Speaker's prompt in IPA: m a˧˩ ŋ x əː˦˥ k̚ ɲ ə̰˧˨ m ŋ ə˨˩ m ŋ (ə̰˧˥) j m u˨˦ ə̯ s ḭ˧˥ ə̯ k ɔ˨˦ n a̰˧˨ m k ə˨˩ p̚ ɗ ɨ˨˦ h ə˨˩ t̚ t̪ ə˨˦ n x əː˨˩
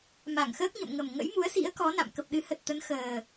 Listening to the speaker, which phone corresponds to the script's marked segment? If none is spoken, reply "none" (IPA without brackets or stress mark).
ə̰˧˥